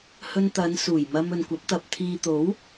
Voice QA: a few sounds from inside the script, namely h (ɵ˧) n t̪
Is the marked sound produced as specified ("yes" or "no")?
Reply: yes